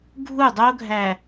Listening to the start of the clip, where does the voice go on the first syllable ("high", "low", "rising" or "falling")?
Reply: falling